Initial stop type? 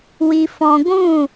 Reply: plain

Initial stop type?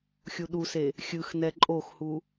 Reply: implosive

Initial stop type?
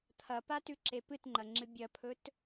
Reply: aspirated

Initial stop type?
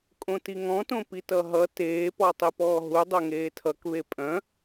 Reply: ejective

